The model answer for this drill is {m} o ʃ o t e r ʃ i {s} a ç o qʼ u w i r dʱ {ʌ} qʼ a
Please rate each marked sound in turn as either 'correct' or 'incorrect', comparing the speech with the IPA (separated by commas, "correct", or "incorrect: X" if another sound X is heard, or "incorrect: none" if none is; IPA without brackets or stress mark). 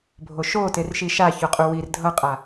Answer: incorrect: bʱ, incorrect: ʃ, correct